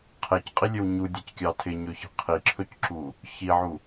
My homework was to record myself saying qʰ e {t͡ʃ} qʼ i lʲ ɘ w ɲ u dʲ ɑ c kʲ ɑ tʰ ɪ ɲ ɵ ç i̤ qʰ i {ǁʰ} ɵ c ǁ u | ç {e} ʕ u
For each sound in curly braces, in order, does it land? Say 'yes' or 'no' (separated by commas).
no, yes, no